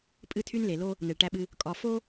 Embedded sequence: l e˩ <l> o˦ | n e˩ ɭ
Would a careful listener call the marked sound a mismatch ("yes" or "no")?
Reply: no